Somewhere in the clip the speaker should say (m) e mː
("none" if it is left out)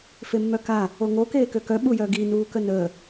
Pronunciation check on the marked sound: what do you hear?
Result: f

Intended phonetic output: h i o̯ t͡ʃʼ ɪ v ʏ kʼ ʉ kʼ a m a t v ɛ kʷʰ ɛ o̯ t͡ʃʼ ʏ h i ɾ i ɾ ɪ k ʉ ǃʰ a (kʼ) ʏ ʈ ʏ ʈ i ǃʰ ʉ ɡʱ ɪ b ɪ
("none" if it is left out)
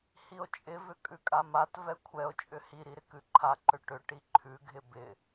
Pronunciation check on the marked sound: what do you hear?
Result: ǃ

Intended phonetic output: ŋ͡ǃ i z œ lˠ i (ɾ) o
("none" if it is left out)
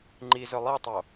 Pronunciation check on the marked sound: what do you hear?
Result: tˤ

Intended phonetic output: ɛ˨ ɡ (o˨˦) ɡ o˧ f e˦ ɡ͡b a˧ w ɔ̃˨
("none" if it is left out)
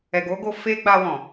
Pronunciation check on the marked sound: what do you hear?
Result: o˨˦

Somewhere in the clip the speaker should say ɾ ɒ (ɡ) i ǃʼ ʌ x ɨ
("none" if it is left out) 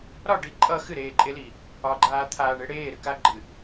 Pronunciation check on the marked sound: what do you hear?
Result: ɖ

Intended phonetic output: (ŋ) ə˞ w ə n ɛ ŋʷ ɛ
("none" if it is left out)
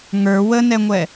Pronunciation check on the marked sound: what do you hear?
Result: ŋ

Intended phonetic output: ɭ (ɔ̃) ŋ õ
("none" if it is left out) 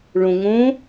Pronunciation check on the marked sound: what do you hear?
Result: õ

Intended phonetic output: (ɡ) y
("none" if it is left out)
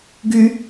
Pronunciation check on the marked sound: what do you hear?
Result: ɡ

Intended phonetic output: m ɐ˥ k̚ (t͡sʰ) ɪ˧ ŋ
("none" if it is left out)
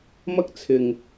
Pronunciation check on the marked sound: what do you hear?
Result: t͡sʰ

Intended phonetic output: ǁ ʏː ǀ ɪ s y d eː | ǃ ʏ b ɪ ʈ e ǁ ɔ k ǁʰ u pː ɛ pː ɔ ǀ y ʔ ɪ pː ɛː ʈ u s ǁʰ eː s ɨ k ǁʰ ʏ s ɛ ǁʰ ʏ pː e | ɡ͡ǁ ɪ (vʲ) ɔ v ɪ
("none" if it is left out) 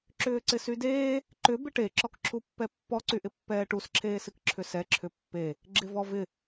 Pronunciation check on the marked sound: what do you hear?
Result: v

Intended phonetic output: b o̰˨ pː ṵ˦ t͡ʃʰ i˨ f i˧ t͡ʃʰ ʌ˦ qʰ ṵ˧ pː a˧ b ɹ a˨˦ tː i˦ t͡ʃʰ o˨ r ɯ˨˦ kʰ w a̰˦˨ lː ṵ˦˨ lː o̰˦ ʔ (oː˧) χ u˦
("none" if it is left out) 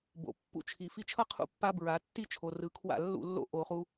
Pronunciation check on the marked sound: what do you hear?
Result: o˧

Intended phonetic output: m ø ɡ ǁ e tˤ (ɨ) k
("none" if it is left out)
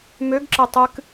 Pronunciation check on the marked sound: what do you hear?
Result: ɨ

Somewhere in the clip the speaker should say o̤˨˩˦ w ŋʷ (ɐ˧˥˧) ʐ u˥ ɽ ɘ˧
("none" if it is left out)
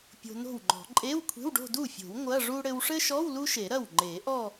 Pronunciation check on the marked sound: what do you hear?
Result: ɐ˧˥˧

